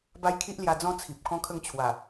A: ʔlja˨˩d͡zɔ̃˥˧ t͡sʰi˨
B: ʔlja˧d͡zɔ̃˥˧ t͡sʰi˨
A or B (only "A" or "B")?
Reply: B